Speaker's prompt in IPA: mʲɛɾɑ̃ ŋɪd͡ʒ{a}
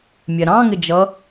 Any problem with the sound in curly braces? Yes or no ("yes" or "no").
yes